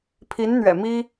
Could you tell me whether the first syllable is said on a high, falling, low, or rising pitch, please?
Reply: rising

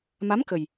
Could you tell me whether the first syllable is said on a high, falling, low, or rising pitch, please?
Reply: rising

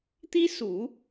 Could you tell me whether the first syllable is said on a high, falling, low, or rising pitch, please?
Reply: high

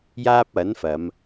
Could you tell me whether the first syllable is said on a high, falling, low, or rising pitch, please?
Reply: high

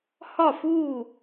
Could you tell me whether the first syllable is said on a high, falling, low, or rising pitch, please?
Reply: falling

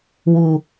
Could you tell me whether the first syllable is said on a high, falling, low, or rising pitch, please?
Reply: low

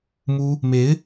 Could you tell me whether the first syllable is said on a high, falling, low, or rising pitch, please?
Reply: high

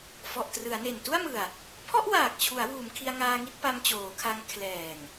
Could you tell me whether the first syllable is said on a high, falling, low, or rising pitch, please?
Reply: low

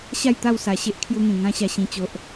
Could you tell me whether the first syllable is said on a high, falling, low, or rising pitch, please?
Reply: falling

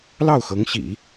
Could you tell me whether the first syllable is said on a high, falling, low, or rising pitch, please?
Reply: falling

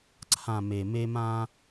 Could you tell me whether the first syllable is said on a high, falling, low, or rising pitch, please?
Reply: low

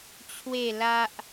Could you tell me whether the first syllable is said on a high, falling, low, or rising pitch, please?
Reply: falling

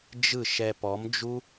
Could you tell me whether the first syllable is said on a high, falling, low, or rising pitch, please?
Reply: falling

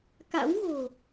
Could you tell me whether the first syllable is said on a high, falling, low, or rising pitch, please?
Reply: rising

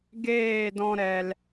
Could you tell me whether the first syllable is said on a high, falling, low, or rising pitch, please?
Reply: falling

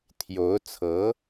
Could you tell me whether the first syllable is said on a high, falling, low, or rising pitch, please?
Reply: rising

